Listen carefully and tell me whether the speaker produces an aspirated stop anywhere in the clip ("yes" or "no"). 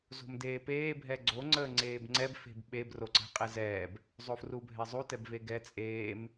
no